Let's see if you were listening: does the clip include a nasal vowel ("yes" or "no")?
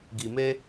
no